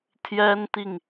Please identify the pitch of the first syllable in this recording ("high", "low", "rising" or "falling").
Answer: high